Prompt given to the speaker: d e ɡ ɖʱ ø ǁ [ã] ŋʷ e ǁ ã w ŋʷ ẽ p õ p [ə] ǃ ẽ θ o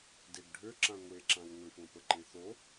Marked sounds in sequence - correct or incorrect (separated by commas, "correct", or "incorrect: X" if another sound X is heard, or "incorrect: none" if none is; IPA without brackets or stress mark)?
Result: correct, correct